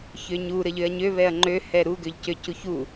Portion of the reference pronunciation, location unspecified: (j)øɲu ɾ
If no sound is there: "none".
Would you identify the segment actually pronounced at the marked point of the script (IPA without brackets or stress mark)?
ç